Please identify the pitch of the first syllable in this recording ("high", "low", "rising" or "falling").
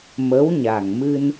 rising